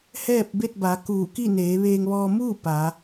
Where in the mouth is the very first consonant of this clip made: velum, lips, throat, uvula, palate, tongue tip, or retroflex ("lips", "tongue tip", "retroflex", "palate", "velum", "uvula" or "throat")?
throat